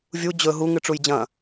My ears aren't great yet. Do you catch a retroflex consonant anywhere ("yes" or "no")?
yes